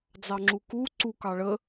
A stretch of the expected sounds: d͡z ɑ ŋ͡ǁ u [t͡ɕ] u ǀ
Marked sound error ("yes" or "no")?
yes